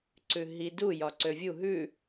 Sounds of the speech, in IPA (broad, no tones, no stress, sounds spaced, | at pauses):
ǀ ʉ ɦ i d u j ɒ ǀ ø vʲ u ɦ ʉ